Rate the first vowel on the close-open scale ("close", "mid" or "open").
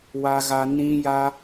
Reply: open